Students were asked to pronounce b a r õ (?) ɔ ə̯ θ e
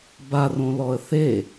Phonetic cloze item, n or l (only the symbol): l